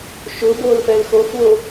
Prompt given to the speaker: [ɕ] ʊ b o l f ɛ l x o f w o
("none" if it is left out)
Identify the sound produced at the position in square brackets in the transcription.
ʃ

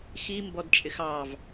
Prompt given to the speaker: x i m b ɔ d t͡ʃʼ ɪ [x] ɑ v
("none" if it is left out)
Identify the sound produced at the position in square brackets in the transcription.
x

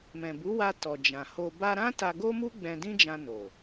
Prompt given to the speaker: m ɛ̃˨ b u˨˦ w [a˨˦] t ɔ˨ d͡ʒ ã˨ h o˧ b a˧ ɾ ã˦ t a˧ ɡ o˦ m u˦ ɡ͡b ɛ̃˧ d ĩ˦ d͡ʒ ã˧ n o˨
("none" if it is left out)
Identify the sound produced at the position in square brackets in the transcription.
a˧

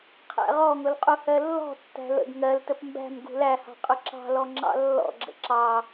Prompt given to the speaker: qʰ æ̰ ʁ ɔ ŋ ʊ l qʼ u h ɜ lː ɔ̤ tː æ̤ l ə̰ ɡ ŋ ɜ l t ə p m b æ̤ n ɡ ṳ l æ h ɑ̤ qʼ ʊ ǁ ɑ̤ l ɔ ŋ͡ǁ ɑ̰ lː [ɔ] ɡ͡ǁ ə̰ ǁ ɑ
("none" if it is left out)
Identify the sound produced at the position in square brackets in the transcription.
ɔ̰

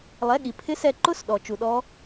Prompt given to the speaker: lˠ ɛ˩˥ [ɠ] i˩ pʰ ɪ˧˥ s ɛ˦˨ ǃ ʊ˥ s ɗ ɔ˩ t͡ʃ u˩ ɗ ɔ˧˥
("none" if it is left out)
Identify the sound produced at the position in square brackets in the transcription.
ɠ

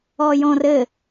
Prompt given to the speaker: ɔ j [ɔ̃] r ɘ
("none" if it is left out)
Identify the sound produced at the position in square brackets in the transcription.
ɔ̃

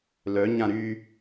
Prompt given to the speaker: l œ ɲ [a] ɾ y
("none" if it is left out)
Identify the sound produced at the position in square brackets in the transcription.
ã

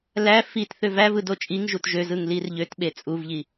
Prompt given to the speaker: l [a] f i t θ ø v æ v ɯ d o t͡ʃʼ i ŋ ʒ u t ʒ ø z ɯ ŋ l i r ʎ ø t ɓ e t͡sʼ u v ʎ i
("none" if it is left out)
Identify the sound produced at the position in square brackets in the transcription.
æ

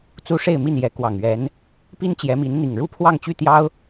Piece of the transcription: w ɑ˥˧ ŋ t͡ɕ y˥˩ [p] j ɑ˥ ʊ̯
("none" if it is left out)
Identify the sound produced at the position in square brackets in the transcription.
t̪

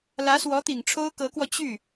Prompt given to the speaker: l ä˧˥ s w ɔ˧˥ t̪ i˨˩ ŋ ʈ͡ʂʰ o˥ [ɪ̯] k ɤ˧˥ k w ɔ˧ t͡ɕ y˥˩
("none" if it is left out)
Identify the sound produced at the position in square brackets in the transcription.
ʊ̯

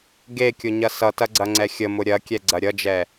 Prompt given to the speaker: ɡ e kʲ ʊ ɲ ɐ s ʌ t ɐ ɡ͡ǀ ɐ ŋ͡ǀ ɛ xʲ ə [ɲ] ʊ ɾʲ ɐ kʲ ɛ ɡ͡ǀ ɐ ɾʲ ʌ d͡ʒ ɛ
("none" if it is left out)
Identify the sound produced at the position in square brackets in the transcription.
m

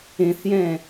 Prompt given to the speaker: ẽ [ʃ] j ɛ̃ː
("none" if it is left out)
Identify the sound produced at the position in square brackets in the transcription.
θ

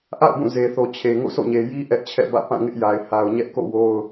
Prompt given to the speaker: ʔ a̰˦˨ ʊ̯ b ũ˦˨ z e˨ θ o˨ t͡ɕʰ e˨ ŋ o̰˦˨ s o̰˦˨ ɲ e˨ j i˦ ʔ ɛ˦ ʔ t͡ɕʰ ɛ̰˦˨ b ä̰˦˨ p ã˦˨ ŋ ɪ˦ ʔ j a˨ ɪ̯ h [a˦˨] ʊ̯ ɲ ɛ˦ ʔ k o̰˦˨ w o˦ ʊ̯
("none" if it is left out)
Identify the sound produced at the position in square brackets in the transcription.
a˨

